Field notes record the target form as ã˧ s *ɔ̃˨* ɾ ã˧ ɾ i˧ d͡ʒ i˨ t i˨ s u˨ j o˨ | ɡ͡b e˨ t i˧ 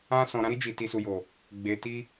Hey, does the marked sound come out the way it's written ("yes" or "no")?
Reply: yes